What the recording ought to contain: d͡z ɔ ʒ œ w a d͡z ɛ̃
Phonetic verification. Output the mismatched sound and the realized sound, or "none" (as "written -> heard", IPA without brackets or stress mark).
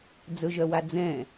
ɔ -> ɵ